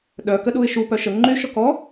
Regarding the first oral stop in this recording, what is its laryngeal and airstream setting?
implosive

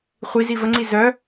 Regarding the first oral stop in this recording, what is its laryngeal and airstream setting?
click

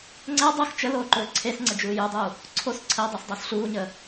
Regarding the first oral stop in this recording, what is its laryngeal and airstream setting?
click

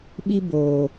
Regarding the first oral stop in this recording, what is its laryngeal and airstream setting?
implosive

